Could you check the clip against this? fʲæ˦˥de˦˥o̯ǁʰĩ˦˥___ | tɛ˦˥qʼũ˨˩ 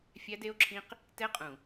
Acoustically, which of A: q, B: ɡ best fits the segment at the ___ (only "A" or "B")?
A